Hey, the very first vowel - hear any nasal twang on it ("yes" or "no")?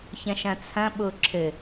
yes